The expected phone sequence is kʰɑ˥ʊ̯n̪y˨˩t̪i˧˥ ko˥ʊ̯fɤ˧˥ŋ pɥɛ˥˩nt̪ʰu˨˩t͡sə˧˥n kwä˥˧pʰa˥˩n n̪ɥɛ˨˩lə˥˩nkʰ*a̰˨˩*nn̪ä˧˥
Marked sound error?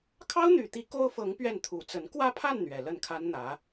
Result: yes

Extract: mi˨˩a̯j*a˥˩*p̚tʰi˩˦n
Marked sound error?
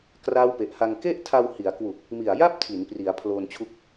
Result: no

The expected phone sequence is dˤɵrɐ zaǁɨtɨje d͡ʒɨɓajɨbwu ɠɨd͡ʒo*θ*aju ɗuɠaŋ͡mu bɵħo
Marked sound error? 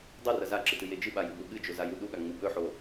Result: yes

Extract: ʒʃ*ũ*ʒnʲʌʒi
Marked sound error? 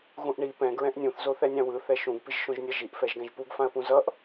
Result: yes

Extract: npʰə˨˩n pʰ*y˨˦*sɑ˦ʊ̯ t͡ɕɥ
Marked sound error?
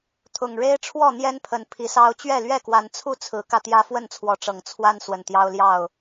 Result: yes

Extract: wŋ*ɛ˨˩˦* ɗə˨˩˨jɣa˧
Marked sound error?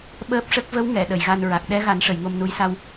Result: yes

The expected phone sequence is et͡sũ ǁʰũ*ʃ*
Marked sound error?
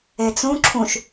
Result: no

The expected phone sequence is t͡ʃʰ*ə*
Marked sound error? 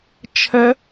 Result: no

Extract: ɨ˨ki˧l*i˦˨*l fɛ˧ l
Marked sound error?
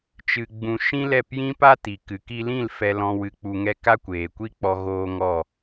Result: yes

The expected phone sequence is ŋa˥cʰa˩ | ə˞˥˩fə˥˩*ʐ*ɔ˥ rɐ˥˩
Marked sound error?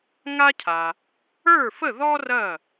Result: yes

